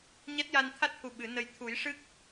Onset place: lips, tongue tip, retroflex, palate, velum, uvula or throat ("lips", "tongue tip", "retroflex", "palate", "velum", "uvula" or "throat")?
palate